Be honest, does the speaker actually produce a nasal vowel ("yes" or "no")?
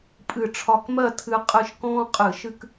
yes